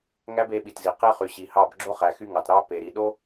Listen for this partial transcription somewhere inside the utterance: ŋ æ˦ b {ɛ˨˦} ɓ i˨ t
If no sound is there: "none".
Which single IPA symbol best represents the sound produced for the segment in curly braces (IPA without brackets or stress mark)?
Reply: e˨˦